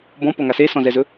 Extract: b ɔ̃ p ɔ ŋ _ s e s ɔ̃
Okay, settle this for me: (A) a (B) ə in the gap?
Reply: A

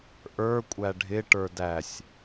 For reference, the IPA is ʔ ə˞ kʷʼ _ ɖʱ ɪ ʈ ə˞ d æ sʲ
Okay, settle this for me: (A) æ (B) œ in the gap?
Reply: A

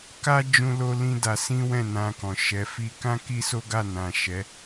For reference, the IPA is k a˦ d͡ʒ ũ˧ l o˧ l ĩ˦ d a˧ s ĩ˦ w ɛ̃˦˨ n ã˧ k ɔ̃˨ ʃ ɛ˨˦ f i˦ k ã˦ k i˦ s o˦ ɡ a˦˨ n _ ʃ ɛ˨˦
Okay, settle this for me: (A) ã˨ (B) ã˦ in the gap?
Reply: A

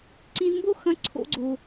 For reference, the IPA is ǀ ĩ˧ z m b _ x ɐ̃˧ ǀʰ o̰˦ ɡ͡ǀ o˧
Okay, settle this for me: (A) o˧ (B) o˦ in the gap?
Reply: B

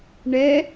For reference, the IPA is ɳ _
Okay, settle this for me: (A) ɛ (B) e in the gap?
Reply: A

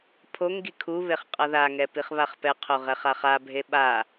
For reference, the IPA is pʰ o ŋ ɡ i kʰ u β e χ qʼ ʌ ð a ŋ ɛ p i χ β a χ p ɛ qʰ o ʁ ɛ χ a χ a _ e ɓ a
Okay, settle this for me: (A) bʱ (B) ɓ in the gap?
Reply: A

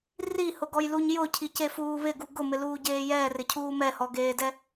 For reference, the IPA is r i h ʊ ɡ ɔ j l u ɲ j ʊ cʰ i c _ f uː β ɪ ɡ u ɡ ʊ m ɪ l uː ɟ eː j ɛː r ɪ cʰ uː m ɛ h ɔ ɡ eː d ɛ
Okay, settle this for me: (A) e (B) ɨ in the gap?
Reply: A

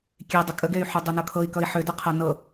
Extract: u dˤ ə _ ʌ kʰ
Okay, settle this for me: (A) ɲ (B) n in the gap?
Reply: B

